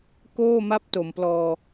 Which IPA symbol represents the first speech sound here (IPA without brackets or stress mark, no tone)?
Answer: k